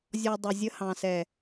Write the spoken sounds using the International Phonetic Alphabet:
zʲ ɔ˧ dˤ ʊ˨ zʲ ə˧ h ɑ̃˨ s ɛ˨

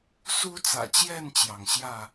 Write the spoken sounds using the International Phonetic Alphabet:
s u˦ t͡s ä̰˨˩ t͡ɕ j ɛ˥˨ n t͡ɕ j ɑ˩ ŋ ɕ j ä˥˨

